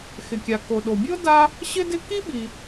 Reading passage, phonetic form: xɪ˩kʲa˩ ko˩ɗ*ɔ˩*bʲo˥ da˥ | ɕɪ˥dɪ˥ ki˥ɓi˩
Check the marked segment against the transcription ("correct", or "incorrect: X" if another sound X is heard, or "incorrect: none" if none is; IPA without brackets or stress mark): incorrect: o˩